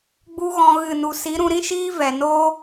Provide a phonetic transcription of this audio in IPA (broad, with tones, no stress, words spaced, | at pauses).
ɡ͡bu˦ɣɔ̃˧ ɣɨ˦˨nu˧ si˨˦ɾũ˧ɾĩ˦ʃiː˦ vɛ˨ noː˦